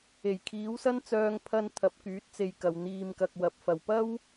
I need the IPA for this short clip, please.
e˨˩jkʰiː˨˥wsɐ˥nt͡sœː˧ŋ pʰɐ˧n t̪ʰɐ˨˥p̚kyː˨˥t̚t͡se˧jkɐ˨w n̪iː˨mkɐ˨k̚ wɐ˨p̚ fɐ˨˩wpɐ˥w

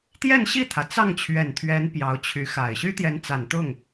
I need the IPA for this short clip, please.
t̪jɛ˥˧nɕi˥˩t̪ʰä˩ t͡sɑ˥˩ŋt͡ɕʰɥɛ˨˩nt̪ʰɥɛ˧˥n pjɑ˧˥ʊ̯t͡ɕʰy˧˥xa˨˩ɪ̯ ɕy˥t̪jɛ˧˥nt͡sa˨˩n t̪ʊ˥˩ŋ

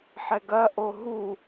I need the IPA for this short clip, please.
ħɛɡɐ ʔoɦu

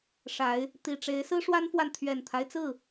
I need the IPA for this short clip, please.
ʂa˨˦ɪ̯ | t̪i˨˩ʈ͡ʂe˨˦ɪ̯ sɹ̩˦ʂwa˦nfwa˨n t̪ʰɥɛ˨˩nt̪ʰa˦ɪ̯t͡sɹ̩˥˨

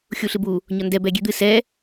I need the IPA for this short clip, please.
xʲuɬɨbu | ɲɒndɛ bɛɡʲed̪ɨ sɛ

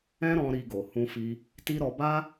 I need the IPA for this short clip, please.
ɛ̃˦ɾɔ̃˧ ɾi˧ɡo˨ hũ˧fi˧ | ti˦ɾɔ˧ ba˦

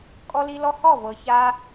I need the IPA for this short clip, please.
kʼɔ˧ li˧ lɔ˧hɔ˦˨ vɤ˨ça˧

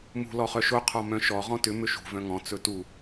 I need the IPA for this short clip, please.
mṳ lɔχœʃo qʰɔmœ̃ʃɔ ʁɔ̃tʏ mʏʃṳ vœ̃ŋɔ̃ t͡sɵtu

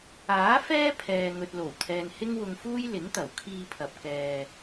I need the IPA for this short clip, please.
aː˨˥ fɛː˥ pʰɛː˨ ŋɵ˨t̚lo˨˩wt̪ʰɛː˨n hɪ˥ŋwʊ˧ŋfuː˥j lɪ˨˥ŋt̪ɐ˨˩w kʰiː˧pʰɐ˨p̚ kɛː˧

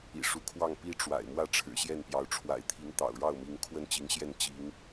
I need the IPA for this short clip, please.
ḭ˨˩ʂu˧˥kʰwɑ˥˩ŋ pi˥ʈ͡ʂwa̰˨˩ɪ̯mwä˥˩ ʈ͡ʂʰɻ̩˨˩ɕjɛ˥˩npjɑ˧˥ʊ̯ ʈ͡ʂʰwa̰˨˩ɪ̯t̪ʰi˧˥ŋt̪ɑ̰˨˩ʊ̯ ɻɑ˥˩ʊ̯mi˧˥ŋ kʰwə˥˩nt͡ɕi˧˥ŋɕjɛ˥˩n t͡ɕi˧˥ŋ

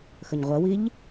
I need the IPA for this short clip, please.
xəɲʁʷɜwiʎ

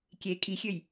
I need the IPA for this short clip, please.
kʲe kʼixʲøj

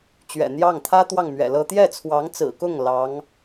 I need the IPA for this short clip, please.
t͡ɕɥɛ̰˨˩n̪jɑ˥˩ŋ t̪ʰä˥ t̪wɑ˥˩ŋmɥɛ̰˨˩lɤ˥ t̪jɛ˥˩t͡sʰwɑ˧˥ŋt͡sɹ̩˨˩kʊ˥˩ŋ lɑ˧˥ŋ

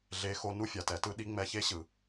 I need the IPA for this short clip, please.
ɮe˧˥xo˧˥ nu˥fʲa˩˧tɛ˩˧tɯ˥ ɗi˧˥ŋ͡mɛ˧çe˥ɕɯ˩

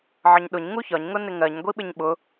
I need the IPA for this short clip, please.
ʕəɲɗʊɲ ŋuçɒɲ ŋʊnɪŋɜɲ ɡʷiɓɪɲɓʊ

